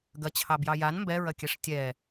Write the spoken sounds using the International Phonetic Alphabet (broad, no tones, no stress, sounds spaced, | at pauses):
ɡ ɐ t͡ɕʰ ɑ b j ɑ j a n m b ɛ ɹ ɐ kʲ ɛ ʂ tʲ ɛ